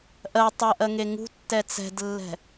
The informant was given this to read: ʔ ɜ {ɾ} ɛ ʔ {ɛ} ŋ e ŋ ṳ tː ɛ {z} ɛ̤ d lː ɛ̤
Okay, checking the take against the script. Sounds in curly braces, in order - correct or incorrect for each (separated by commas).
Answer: incorrect, incorrect, incorrect